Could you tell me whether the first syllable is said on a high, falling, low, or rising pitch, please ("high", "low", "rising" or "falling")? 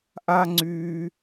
high